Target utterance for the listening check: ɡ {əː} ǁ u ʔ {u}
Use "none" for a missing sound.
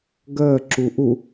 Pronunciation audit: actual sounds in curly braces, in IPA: əː, u

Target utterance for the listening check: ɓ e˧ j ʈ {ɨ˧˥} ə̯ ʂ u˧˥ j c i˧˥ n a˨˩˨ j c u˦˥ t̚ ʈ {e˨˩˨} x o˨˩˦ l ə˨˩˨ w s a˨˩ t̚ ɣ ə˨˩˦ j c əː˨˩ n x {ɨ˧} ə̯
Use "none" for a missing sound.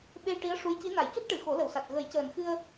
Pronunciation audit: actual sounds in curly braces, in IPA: i˧˥, ɨ˨˩˨, ɨ˧

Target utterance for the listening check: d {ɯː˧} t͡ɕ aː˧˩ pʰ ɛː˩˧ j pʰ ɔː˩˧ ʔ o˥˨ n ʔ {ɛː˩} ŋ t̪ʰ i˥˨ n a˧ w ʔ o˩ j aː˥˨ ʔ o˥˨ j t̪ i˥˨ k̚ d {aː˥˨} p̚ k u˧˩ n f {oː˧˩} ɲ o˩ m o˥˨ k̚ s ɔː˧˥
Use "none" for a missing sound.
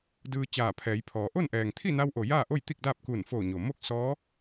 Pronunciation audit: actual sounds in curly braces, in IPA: ɯː˧, ɛː˩, aː˥˨, oː˧˩

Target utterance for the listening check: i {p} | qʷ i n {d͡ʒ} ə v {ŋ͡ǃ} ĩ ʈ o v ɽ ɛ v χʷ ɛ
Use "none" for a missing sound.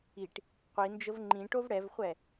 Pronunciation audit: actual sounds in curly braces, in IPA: ʈ, d͡ʒ, ŋ͡ǃ

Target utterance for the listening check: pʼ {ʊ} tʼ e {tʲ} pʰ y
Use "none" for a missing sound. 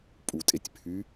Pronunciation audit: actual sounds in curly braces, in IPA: u, tʲ

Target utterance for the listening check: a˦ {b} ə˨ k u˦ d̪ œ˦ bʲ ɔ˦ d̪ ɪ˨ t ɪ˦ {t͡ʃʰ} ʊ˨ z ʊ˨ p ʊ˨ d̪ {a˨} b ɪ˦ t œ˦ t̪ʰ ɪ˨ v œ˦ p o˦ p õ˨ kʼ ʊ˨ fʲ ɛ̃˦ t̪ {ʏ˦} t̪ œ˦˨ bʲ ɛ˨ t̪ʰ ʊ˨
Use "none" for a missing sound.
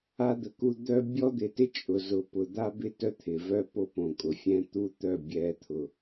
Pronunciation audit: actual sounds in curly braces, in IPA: d̪, t͡ʃʼ, a˦, u˦

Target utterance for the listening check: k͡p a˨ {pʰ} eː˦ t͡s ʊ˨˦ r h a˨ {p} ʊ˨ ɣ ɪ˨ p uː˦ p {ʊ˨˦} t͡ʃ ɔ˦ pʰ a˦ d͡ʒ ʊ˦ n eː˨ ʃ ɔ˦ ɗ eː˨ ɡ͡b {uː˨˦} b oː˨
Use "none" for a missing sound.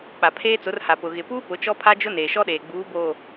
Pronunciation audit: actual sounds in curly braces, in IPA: pʰ, p, ʊ˨˦, uː˨˦

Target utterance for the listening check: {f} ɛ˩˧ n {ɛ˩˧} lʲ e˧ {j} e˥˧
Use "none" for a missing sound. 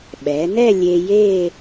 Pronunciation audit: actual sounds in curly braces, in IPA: ɓ, ɛ˥˧, j

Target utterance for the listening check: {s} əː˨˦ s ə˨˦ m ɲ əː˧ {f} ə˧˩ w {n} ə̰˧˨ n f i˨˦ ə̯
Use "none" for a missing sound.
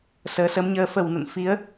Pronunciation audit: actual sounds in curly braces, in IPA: s, f, n

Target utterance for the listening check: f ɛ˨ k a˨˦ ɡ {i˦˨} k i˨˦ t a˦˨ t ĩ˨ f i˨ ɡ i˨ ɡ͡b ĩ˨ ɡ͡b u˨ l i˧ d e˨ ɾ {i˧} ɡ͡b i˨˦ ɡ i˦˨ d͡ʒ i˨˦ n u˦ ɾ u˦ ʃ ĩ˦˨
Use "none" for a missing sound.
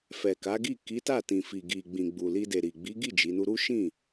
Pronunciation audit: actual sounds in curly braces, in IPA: i˦˨, i˨

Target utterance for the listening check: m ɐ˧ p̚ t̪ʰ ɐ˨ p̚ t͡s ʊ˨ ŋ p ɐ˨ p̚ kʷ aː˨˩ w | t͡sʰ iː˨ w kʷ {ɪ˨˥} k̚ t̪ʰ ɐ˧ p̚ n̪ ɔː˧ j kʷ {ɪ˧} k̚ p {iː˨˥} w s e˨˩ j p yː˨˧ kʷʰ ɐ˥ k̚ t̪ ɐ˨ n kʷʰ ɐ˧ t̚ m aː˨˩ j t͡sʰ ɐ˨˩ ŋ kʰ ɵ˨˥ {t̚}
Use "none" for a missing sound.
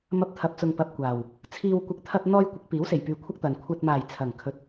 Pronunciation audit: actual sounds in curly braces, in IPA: ɪ˨, ɪ˨˥, iː˨˥, t̚

